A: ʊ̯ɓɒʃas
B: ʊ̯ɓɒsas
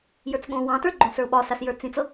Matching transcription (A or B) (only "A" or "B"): B